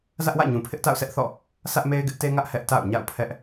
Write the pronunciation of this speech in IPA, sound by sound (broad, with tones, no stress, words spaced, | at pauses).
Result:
zä˦ʔwä̰˦˨ɲũ˨ pʰɪ˦ʔta̰˦˨ʊ̯sʰɛ˦ʔ θɔ̰˦˨ | sä˦ʔ me˦ɪ̯ɡɪ˦ʔ te˦ŋä˦ʔ hɛ˦ʔ ta̰˦˨ʊ̯ɲa̰˦˨ʊ̯ pʰɛ˦ʔ